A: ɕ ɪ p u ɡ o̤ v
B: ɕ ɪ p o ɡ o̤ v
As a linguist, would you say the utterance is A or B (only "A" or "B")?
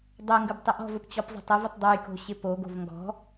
B